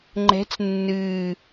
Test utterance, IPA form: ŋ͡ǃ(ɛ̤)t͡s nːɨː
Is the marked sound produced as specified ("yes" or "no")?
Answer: yes